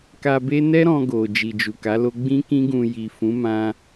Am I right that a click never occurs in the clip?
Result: yes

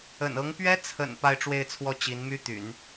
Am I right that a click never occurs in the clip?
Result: yes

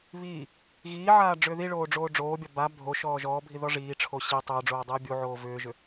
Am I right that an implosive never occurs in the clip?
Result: yes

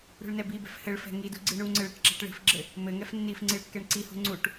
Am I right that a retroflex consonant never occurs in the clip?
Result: no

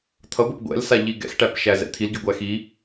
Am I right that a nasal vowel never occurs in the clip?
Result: yes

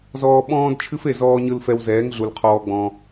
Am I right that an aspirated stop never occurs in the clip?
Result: no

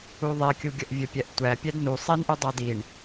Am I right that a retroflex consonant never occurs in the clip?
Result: no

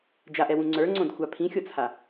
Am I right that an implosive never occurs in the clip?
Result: yes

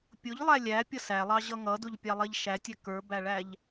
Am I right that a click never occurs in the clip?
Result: yes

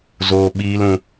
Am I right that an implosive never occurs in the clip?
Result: no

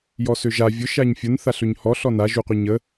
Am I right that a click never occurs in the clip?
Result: yes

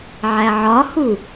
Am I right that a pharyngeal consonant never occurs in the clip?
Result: no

